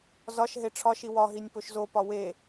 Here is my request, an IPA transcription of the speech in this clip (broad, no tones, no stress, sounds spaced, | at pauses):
z ɒ ʃ ɦ e ʈ͡ʂʰ ɒ ʃ i w ɒ ɦ i nʲ p o ʃ z o p ɒ w e